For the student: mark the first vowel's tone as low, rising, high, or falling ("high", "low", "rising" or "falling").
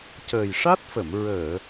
low